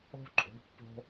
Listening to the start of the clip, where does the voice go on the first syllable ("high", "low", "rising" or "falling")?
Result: high